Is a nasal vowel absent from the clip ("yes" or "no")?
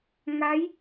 yes